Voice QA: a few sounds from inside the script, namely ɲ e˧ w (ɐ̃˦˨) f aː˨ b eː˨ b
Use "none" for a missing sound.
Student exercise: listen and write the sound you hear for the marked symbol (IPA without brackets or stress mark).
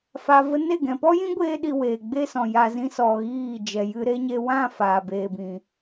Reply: ã˦˨